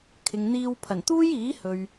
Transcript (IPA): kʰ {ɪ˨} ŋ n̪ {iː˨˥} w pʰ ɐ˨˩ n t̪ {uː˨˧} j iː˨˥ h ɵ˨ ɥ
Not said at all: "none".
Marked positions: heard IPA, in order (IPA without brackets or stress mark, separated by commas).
ɪ˨, iː˧, uː˥